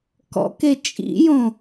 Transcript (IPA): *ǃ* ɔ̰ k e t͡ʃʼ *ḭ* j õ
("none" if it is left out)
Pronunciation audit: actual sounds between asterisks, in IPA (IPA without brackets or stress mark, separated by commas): k, ḭ